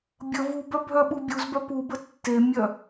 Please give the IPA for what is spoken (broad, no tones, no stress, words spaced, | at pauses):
bʲə vubœ bʱœɓubʲuzbœ pu bətːemʲœ